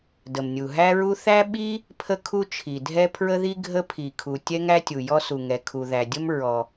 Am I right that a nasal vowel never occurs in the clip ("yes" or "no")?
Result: yes